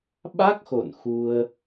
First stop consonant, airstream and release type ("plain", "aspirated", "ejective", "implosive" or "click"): implosive